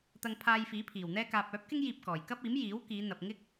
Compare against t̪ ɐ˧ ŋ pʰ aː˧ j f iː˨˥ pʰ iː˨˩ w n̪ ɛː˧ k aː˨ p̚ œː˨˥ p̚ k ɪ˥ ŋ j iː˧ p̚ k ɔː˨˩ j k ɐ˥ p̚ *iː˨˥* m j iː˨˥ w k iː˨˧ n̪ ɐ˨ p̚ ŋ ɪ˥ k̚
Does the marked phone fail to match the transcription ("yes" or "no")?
no